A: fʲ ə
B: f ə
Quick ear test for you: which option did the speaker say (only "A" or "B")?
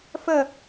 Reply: B